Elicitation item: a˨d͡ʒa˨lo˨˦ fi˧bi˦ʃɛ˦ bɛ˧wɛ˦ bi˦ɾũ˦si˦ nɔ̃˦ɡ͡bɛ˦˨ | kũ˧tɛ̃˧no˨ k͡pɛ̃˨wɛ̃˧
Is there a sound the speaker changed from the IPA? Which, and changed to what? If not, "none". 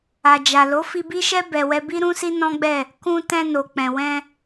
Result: none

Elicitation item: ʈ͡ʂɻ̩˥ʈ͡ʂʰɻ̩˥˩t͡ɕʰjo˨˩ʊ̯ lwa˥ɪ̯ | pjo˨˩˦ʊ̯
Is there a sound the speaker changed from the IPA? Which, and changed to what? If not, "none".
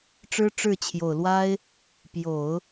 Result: ʈ͡ʂʰ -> ʈ͡ʂ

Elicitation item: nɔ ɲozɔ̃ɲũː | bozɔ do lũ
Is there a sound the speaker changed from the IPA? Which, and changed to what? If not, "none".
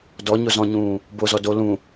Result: n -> d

